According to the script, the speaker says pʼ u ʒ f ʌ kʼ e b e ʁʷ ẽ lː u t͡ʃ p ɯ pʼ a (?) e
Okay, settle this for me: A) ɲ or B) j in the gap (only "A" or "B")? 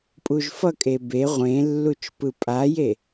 B